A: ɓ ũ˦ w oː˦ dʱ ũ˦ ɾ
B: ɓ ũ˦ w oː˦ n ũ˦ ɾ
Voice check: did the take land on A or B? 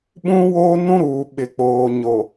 B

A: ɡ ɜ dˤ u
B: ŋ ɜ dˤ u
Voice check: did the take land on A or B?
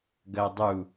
A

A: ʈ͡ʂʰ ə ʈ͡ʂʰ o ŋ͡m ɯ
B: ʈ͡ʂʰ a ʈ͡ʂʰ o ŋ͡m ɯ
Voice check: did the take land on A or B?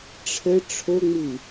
A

